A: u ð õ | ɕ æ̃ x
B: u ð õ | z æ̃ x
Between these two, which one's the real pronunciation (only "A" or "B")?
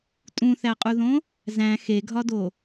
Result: B